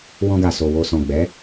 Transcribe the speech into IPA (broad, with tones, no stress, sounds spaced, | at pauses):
w ɔ̃˧ ɡ a˨ s o˨ w o˨ s ɔ̃˨ ɡ͡b ɛ˨˦